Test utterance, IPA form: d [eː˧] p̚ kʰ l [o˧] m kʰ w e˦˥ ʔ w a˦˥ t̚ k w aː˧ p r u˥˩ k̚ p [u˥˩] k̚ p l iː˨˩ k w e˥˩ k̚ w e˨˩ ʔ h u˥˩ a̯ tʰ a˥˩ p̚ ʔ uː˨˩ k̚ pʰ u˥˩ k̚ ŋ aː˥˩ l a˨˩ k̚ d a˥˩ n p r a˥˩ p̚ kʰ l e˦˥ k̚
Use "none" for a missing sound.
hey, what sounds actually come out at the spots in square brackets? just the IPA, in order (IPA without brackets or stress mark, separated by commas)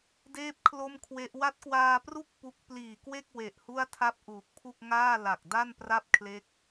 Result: eː˥˩, o˥˩, u˦˥